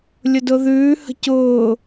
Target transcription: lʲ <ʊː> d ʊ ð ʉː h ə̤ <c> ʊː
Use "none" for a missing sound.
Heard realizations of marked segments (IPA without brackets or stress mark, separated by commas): ʊ, c